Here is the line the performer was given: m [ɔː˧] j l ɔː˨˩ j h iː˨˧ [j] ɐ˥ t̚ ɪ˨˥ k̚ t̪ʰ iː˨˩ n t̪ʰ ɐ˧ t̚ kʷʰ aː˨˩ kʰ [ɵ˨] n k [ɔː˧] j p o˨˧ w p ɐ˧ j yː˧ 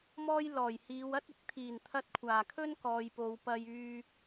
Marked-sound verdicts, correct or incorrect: incorrect: ɔː˥, incorrect: w, incorrect: ɵ˥, incorrect: ɔː˨

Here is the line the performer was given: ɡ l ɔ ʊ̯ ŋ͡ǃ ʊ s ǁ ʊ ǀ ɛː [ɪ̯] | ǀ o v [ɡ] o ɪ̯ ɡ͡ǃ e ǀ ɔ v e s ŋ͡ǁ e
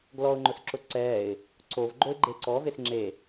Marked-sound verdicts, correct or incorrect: correct, incorrect: ɡ͡ǃ

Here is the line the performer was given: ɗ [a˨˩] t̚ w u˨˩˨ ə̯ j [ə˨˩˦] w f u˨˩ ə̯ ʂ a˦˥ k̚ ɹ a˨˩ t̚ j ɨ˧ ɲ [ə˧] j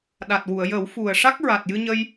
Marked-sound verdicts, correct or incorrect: correct, correct, correct

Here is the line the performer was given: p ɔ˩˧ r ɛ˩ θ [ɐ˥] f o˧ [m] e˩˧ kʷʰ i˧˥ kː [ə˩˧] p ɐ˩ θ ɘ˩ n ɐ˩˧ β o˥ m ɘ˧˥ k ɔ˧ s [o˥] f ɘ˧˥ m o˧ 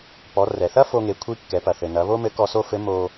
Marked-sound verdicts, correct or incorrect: correct, incorrect: ŋ, incorrect: ɛ˩˧, correct

